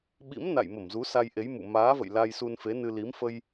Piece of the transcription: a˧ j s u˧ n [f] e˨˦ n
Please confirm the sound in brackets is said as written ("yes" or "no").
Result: yes